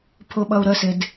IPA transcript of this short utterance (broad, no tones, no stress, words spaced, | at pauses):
pʰʊɓʌu̯ɾəsɪd